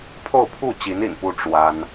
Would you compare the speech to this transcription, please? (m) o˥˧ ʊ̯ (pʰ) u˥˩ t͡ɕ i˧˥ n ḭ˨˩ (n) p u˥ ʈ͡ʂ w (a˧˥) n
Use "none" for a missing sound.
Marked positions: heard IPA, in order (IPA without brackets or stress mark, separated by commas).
pʰ, pʰ, n, a˥